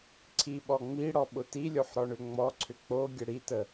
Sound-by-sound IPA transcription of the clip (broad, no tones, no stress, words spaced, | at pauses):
ǀʰiɓɔ ŋ͡miɽɔ ɓʊtilʲoħ ɾɔɳʏŋ͡mɔǀʰʏ k͡poɡʲə ɽitə